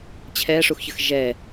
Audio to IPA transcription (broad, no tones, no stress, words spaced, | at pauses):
t͡ɕʰɛʂuxçəx ʒɛ